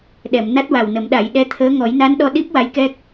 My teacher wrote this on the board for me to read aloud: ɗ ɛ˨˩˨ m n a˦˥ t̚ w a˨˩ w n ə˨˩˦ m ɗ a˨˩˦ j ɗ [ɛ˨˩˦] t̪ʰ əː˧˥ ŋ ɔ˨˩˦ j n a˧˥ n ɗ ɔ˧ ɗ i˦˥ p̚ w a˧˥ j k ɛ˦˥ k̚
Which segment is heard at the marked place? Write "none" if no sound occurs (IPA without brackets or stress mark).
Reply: ɛ˧